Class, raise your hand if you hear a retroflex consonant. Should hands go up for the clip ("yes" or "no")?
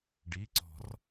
yes